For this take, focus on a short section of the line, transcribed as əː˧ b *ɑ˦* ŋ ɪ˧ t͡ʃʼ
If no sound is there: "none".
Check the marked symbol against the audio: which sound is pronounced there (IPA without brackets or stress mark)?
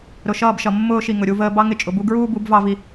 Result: ɑ˦